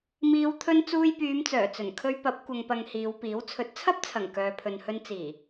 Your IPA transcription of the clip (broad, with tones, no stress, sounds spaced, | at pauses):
m iː˨˧ w t̪ʰ ɵ˧ n t͡s uː˧ j p yː˨˧ m t͡s œː˨˩ t͡s ɵ˨˩ n kʰ ɵ˧ ɥ p ɐ˨˥ p̚ kʷ ɐ˨ ŋ p ɐ˨ ŋ h iː˨˧ w p iː˨˥ w t͡sʰ ɵ˨˥ t̚ t͡sʰ ɐ˥ p̚ t͡sʰ ɐ˨˩ ŋ k œː˨ pʰ ɵ˨ n h ɵ˧ n t͡s iː˨˩